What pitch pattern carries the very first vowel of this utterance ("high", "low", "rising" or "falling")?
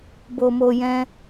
low